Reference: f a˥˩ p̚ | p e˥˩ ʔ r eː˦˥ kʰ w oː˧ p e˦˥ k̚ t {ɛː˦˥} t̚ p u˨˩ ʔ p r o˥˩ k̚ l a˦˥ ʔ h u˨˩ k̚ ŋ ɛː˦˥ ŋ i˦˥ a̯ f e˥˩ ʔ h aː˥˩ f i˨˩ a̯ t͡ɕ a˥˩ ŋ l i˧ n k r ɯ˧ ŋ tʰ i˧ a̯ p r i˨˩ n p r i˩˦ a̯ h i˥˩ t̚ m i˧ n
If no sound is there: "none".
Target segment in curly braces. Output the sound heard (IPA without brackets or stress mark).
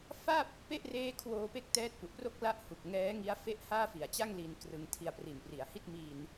ɛː˦˥